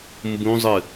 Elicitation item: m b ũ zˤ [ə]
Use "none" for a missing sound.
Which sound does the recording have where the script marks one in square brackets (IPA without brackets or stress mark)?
ɨ